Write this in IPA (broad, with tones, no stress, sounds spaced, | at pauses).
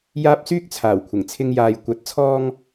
j aː˥ p̚ s yː˥ k̚ t͡sʰ aː˨˩ w kʷʰ ɪ˨˩ ŋ t͡sʰ ɪ˧ ŋ j aː˨ j kʷ ɐ˨˥ t̚ t͡sʰ ɔː˧ ŋ